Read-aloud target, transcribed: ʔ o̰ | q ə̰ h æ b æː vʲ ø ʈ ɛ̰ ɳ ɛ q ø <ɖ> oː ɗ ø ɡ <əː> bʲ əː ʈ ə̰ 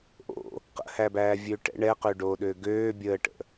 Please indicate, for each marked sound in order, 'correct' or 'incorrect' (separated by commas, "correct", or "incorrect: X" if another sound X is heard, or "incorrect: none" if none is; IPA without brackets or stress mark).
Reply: correct, incorrect: øː